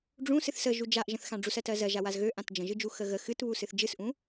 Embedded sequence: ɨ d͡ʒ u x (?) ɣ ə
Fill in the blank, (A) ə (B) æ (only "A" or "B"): A